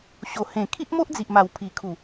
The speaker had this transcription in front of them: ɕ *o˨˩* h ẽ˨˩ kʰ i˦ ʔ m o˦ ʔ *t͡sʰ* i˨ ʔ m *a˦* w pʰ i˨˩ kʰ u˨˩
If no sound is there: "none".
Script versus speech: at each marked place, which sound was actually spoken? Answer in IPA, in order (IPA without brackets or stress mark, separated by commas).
o˨˩, d͡z, a˨˩